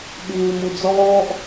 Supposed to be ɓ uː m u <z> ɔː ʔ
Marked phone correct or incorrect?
incorrect